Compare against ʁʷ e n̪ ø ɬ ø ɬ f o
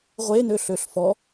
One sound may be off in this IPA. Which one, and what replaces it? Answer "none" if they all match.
o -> ɔ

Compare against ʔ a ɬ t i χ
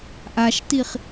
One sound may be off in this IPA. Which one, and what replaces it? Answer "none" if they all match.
ɬ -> ʃ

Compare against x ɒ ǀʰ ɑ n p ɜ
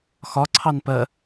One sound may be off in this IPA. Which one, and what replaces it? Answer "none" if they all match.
none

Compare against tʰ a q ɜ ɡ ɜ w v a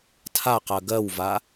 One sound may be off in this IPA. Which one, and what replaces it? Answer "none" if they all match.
none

